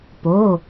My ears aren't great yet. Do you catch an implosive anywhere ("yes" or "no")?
no